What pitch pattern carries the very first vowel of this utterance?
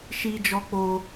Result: high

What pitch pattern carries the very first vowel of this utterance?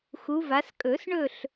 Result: rising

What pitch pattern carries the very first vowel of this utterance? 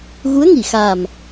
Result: rising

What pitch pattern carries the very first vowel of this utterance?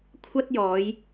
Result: high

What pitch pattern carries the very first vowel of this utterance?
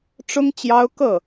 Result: high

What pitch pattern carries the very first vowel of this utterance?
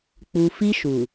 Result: low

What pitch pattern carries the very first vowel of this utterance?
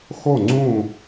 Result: falling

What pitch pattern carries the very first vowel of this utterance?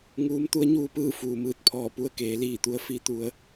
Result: rising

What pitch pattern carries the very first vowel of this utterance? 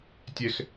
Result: high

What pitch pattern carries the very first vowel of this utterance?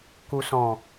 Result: low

